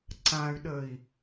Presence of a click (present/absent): present